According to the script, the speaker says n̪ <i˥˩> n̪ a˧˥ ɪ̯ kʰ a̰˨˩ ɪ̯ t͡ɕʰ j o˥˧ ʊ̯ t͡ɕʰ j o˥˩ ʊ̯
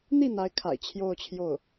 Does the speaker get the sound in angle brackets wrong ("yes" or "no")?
no